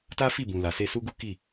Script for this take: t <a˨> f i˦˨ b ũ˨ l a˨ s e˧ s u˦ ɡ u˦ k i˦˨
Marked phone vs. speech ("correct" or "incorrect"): incorrect